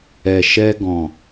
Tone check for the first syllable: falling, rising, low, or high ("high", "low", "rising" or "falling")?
low